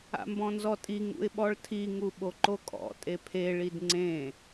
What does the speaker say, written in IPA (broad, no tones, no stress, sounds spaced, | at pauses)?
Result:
a̰ m b ɔ̃ n z ɔ tʼ i ŋ ṵ ɪ̯ ɓ ɔ ɭ tʰ i ŋ u ɓ o ǃ o kʼ ɔ̰ tʼ e pʰ e ɭ i d ŋ͡ǀ ẽ